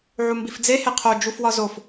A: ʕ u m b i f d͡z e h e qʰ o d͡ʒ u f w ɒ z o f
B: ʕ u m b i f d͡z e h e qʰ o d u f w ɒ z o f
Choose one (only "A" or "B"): A